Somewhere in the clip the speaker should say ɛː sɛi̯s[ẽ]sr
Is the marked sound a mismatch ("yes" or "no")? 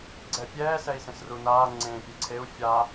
no